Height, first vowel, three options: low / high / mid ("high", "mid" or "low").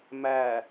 low